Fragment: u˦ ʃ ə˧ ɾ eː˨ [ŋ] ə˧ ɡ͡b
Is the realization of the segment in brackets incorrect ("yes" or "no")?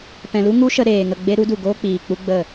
no